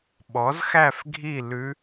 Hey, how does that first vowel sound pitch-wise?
rising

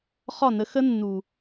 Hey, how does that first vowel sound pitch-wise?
falling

